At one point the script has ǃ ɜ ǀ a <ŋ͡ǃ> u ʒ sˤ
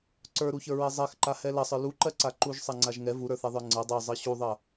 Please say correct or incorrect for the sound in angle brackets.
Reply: incorrect: ǃ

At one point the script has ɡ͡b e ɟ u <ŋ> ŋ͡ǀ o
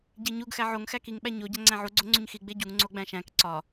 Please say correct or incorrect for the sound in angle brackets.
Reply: correct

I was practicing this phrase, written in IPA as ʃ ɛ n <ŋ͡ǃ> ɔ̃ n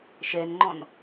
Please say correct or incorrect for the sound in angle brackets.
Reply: correct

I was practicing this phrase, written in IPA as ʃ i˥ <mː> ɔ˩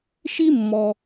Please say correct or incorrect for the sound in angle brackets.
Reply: correct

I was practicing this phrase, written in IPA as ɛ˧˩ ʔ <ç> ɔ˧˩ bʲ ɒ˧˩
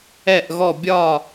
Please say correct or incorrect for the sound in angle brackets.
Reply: incorrect: ɣ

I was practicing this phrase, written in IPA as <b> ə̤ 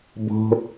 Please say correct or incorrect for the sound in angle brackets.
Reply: correct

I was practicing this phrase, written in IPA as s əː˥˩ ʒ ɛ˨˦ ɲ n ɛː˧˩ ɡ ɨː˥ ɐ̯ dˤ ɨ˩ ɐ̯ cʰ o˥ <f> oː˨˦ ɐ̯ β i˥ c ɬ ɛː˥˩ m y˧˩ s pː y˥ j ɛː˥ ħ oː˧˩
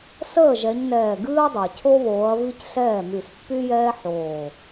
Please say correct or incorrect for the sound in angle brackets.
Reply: incorrect: β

